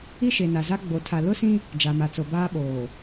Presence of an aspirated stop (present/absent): present